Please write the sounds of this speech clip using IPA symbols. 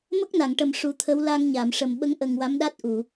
m ə˦˥ k̚ n a˨˩˨ ŋ ʈ ə˨˩ m ʂ u˨˩˦ t̪ʰ ə˧˥ w l a˧ ŋ ɲ a˨˩˨ m ʂ ə˨˩ m ɓ ə˧˥ ŋ ʔ ə˨˩ ŋ w a˧˥ m ɗ a˦˥ t̚ ʔ u˨˩˨

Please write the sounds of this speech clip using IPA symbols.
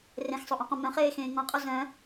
r ẽ x sˤ o ʔ ũ q õ m œ̃ χ eː x ẽː ŋ ɔ̃ qʼ o z œ̃

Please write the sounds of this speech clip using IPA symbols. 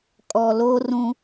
kʼ ɔ˨ l o˦ r ũ˦

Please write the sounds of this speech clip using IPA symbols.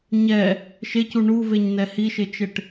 ɲ ɛ | ʃ e c u ɳ u v e ɲ n ɛ h i ʃ e t͡ʃ e ʈ

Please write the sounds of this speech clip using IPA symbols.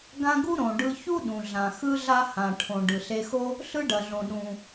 ɡ ã˥ ɡ u˥ ɾ õ˩ ɖ ɯ˧ ç u˥ ɗ ũ˩ ɮ ã˩ x ɯ˥ ɮ a˥ h ã˩ ʈʰ õ˩ ɖ ɯ˩ ɬ e˧ x o˥ | ɬ ɯ˥ ɖ ɐ˩ ɮ õ˩ ɗ ũ˩

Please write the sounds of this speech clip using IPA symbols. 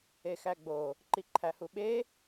e x æ ɡ͡b o | ǃ i ǃʰ æ h u ɓ e

